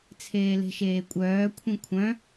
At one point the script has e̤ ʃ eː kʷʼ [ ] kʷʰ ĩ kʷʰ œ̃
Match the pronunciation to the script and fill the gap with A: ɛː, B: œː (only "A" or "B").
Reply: B